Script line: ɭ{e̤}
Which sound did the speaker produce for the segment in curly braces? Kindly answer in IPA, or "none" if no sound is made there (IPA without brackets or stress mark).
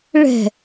ɛ̤